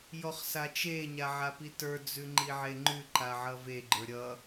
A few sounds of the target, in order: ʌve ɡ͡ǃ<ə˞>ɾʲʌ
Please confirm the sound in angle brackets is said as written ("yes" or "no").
yes